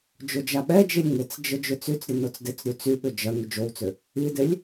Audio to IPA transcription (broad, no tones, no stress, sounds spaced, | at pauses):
d͡ʒ ʊ d͡ʒ a ɓ ɛ d͡ʒ i lʲ ŋ ɪ t͡s d͡ʒ ə d͡ʒ ʏ t͡s y t͡s ɾʲ ʊ n o t͡s d ɪ t͡s ɾʲ u t͡s y ɓ ʏ d͡ʒ ɐ ŋ ʏ d͡ʒ o w t͡s ʏ | i d ɪ lʲ